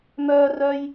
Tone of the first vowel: high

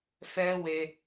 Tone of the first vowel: high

